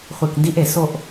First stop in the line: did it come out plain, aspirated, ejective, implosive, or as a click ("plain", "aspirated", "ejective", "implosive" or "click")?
plain